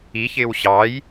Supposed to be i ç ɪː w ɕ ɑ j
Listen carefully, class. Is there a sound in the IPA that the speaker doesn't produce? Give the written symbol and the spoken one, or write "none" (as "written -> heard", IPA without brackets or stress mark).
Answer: none